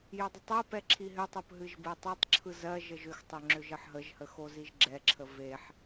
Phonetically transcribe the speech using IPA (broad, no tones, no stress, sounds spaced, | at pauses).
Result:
j ʏ dˤ ə tˤ ɛ p ɛ ǁʰ i ɦ ʏ tˤ o p ɦ ɨ ʒ b ɛ tˤ e tˤ ǁʰ ɯ z ɜ ʒ ə ʒ ʏ x tˤ ʏ ŋ͡ǁ ʏ ʒ ə ħ ɦ ə ʒ h ə x o z i ʒ ɡ͡ǁ ɛ ǁʰ ə v e ħ